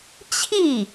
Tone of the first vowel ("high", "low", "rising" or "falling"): falling